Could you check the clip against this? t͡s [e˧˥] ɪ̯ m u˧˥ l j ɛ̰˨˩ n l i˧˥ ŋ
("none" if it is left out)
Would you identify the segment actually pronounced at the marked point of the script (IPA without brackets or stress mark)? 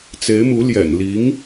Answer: e˧˥